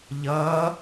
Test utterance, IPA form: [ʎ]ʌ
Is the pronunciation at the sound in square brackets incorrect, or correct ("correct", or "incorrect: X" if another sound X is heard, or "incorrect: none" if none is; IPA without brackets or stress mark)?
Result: correct